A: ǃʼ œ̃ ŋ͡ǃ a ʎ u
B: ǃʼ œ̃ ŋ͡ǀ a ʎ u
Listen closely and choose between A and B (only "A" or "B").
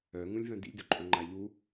A